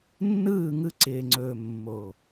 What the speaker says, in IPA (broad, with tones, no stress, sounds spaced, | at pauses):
nː ɯː˦˨ ŋ ɯ˧ ǀ ɪː˨ ŋ͡ǀ ɵː˨ mː o˨